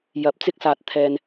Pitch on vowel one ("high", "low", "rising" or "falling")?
rising